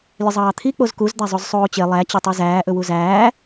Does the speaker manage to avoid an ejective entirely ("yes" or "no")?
yes